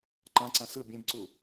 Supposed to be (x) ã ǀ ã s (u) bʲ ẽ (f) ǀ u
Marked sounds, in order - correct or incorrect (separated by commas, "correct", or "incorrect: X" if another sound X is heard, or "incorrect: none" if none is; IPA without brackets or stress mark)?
incorrect: ǃ, incorrect: ɯ, incorrect: b